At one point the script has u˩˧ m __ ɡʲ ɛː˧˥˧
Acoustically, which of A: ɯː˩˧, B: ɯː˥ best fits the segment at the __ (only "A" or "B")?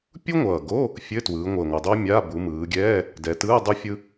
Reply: A